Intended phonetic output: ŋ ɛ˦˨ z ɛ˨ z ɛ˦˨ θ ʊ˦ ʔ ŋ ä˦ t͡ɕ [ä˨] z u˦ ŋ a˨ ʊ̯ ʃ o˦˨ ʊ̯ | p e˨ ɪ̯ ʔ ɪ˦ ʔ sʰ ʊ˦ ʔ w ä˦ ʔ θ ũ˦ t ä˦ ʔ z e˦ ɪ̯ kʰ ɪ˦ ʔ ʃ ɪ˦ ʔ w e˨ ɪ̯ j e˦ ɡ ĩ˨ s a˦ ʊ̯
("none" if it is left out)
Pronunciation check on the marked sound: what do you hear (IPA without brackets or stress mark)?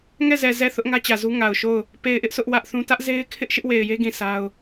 ä˨